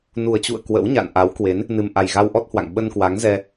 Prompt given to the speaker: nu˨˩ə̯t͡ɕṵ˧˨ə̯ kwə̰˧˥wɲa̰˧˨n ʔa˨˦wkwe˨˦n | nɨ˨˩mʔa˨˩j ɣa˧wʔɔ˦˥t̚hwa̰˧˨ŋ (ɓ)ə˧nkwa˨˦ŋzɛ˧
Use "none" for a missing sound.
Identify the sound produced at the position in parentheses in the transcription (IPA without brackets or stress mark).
ɓ